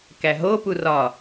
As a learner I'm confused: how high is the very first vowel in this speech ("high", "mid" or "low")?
low